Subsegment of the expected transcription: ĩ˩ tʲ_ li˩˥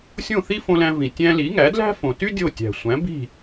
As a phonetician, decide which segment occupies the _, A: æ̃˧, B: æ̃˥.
A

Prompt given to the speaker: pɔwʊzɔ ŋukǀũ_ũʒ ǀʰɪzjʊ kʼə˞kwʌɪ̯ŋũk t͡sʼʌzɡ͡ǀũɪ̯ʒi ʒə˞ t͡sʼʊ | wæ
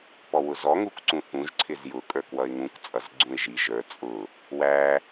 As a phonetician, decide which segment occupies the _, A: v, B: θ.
B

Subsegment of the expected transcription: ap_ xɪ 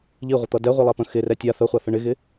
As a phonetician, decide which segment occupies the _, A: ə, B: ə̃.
B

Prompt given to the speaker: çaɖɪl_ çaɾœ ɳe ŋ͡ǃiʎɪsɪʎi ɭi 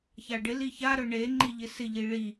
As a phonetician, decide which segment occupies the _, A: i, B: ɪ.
A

